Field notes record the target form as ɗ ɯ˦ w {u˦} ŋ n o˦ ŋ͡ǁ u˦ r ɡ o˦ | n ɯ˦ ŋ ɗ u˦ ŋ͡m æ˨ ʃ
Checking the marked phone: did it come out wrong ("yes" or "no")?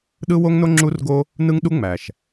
yes